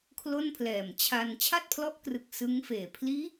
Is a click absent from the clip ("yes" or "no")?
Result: yes